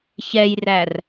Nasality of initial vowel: oral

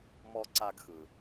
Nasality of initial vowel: oral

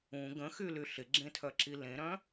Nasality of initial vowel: nasal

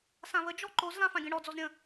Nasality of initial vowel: nasal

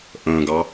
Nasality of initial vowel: nasal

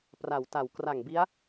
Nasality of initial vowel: oral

